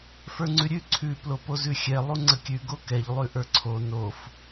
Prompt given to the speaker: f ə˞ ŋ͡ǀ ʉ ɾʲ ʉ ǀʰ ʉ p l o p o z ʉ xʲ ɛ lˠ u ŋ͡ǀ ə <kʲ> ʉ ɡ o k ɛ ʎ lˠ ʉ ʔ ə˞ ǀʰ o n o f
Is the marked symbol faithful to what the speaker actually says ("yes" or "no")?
yes